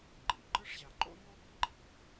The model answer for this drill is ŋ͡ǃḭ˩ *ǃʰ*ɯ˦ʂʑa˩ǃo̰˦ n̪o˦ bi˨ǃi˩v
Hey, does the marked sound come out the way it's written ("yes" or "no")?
no